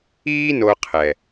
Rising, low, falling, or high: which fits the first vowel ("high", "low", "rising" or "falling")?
high